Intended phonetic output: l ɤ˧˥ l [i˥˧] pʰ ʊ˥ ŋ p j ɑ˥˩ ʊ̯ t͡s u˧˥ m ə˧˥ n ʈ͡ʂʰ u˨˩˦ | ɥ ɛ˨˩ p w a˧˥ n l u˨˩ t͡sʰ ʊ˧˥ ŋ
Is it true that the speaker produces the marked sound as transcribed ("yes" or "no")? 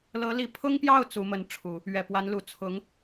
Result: no